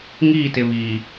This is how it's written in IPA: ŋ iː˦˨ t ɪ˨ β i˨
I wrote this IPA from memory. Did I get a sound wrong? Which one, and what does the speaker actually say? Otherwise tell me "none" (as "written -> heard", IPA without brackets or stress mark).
i˨ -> iː˨